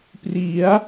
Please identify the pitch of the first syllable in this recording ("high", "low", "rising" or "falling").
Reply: rising